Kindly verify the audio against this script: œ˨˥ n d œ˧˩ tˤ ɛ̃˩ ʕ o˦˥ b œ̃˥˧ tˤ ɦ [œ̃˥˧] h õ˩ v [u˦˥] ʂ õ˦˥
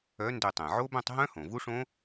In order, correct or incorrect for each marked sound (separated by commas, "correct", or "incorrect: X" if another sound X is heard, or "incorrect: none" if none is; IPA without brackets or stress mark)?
incorrect: œ̃˦˥, correct